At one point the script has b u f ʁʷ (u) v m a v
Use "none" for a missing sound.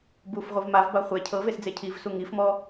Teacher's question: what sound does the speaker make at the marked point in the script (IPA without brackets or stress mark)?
ɯ